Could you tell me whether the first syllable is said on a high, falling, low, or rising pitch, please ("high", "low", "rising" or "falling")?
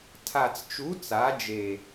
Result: low